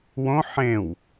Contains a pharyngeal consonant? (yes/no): yes